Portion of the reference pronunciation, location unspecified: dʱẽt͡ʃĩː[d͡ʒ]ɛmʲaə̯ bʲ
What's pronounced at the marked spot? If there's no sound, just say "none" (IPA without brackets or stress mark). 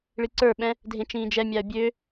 d͡ʒ